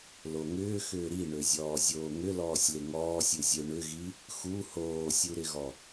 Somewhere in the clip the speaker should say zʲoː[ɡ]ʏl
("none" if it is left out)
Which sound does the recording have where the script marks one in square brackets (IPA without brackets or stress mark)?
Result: ŋ